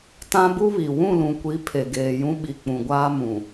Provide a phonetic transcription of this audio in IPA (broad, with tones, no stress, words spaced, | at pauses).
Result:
tã˦bu˦βi˨ wũ˦˨lũ˨kʷi˨˦ pʰe˨ɡeː˨jũ˦ ɓi˨k͡pũ˨ɡʷaː˦mũ˨